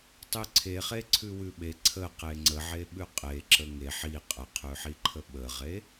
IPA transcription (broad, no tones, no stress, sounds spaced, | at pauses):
tˤ ʉ ǀʰ e χ e ǀʰ ʉ w ʉ ɓ e ǀʰ ə q e ŋ͡ǀ ə ʕ e ɓ ʉ qʼ e ǁ ə ŋ e ħ i qʼ ə qʰ ʉ ħ i ǃʰ ə ɓ ə ʁ e